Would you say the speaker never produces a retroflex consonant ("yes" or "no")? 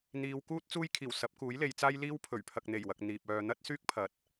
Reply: yes